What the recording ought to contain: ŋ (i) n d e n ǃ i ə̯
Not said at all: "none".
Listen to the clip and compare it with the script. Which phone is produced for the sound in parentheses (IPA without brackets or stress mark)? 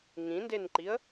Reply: ĩ